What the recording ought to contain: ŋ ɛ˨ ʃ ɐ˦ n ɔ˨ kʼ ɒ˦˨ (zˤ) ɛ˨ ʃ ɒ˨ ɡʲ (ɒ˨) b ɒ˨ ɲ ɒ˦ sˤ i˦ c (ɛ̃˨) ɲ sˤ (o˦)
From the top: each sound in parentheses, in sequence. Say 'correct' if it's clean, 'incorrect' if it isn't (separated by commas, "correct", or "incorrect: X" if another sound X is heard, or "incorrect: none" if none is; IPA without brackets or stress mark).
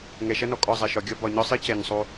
correct, incorrect: ɒ˦, incorrect: ɛ˨, correct